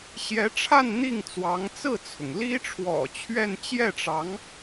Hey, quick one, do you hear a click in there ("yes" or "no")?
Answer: no